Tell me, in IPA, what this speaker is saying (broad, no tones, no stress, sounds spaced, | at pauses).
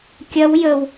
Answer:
kʲ ɐ w j ə w